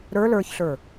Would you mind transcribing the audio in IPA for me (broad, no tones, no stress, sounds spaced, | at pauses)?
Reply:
ɾ ə˞ l ə˞ ç ɬ ə˞